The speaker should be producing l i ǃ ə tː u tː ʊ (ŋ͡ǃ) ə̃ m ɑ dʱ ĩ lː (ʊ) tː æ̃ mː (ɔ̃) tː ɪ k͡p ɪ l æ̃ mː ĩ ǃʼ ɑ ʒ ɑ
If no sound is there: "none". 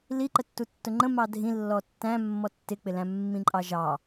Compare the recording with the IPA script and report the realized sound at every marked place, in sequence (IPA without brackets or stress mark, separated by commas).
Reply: ŋ͡ǃ, ɔ, ɔ